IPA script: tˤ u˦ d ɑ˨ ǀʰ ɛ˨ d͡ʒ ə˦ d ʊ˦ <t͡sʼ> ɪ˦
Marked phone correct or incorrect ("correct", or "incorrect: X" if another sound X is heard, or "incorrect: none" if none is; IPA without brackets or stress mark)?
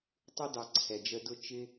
incorrect: t͡ʃ